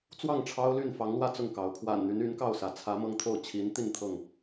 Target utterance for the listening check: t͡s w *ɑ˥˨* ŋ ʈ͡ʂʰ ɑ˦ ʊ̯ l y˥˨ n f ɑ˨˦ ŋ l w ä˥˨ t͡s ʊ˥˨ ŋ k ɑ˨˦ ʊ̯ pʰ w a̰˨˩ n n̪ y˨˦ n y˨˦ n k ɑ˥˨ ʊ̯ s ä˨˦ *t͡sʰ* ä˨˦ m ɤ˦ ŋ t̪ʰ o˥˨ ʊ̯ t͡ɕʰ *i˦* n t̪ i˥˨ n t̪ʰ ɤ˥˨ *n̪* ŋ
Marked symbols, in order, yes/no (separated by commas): yes, yes, no, no